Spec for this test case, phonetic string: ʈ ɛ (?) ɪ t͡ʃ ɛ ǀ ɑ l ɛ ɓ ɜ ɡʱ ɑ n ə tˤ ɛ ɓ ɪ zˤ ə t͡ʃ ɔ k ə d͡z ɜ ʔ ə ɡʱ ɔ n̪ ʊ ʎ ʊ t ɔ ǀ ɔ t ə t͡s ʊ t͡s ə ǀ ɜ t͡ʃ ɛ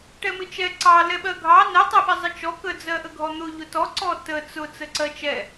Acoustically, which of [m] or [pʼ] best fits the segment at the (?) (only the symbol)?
m